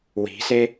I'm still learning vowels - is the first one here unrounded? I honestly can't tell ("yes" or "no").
yes